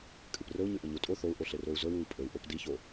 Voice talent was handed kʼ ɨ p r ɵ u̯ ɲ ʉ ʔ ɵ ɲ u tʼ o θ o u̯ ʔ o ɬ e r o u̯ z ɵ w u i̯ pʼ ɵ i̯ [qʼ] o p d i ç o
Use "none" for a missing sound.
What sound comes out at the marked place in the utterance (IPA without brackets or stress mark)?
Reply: ʔ